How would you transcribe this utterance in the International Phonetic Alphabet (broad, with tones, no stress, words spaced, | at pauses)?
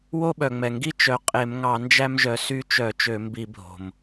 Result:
wo˦ɓœ˩ŋ͡mɛ˩ ŋɡi˦ t͡ʃœ˨˦qʼe˧˩˧m ŋɑ˧˩˧ nd͡ʒæ˦mʒœ˨˦ sy˦ t͡ʃœ˧˩˧ t͡ʃø˧˩˧mbi˧˩˧bʱo̤˩m